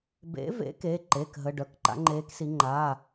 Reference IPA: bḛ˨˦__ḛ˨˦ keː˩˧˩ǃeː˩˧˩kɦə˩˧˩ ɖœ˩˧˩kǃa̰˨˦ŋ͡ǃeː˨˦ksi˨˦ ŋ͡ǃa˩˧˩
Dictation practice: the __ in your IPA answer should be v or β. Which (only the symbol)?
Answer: v